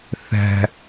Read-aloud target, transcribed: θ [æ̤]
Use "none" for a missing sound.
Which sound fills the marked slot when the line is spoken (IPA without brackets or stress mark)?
æ̤